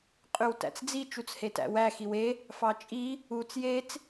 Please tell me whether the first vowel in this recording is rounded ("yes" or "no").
yes